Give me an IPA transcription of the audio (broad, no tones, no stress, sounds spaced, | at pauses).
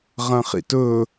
ʁ ɐ̃ χ ḭ t ɵ